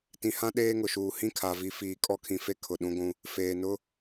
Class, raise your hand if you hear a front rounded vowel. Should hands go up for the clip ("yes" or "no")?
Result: no